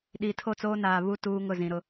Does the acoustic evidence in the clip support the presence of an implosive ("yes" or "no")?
yes